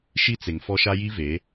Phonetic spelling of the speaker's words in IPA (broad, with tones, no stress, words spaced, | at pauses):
ʃi˦t͡se˨ŋfɔ˦ʃa˦ ji˦ve˨˦